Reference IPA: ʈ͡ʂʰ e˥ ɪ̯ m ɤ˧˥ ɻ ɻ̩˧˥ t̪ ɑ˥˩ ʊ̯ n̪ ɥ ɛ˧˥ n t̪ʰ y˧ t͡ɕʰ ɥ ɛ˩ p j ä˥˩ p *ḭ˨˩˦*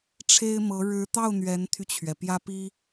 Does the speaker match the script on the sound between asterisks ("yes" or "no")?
no